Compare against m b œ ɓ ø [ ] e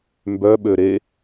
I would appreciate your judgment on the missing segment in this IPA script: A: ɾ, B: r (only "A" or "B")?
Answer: A